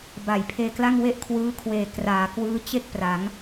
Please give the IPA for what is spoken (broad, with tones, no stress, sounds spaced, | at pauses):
b a˨˩ j pʰ eː˧ k l a˥˩ ŋ w e˥˩ ʔ kʰ w ɯː˦˥ kʰ w eː˨˩ k r aː˩˦ k w ɯː˦˥ t͡ɕ e˥˩ k̚ p r a˩˦ ŋ